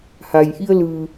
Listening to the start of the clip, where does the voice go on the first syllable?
low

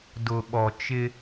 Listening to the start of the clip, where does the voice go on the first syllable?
low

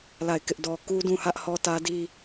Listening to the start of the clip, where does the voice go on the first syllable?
falling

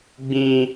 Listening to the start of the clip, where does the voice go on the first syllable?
high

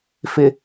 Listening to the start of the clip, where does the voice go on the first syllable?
low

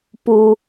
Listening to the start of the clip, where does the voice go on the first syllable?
low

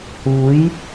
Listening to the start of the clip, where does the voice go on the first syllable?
rising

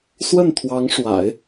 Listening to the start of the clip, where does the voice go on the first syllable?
falling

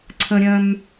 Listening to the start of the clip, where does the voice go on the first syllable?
high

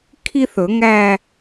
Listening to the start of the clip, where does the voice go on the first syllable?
high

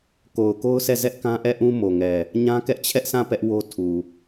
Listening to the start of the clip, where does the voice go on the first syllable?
low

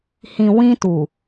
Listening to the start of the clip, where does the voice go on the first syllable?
low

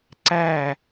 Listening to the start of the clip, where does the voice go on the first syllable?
falling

